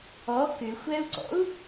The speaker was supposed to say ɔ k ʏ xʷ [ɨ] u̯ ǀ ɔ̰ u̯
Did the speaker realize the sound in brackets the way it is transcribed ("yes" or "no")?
no